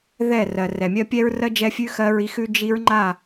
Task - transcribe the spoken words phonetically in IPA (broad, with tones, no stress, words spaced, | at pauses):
ðɛ˦˨rɜ˨ rɛ˨mʲɜ˦ pʲɛ˦ɹrɜ˦d͡ʒɛ˦fʲʉ˦ xɜ˦ɹi˦xʉ˦ d͡ʒi˦ɹŋ͡ǃa˦˨